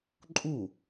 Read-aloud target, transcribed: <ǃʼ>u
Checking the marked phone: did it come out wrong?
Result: no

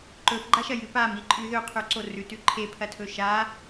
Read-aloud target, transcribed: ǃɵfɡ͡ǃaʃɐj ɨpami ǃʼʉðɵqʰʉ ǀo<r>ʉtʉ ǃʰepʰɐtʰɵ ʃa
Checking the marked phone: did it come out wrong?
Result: no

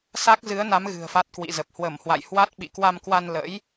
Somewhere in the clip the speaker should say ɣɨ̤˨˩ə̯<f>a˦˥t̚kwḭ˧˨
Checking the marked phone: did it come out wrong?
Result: no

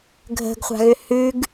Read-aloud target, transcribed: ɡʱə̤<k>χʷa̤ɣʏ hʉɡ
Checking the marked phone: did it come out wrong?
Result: yes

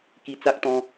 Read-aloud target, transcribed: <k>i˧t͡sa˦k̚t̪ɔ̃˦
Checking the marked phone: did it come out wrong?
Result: no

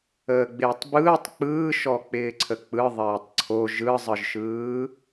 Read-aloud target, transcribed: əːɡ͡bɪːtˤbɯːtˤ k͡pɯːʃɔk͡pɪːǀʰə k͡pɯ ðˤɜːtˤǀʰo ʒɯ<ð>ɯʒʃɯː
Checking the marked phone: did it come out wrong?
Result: yes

